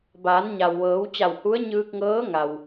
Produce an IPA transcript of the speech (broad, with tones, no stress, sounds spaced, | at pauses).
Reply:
b aː˩˧ n ɲ a˩ w ʋ ɤː˩˧ w t͡ɕ a˧˩ w h u˧˥ ə̯ ɲ ɯː˧ k̚ ŋ ɤː˧˥ ŋ a˩ w